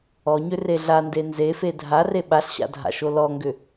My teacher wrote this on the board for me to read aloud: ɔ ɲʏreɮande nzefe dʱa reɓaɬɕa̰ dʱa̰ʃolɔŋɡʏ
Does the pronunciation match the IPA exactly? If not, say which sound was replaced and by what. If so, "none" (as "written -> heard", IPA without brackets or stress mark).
none